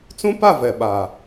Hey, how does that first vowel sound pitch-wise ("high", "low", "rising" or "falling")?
high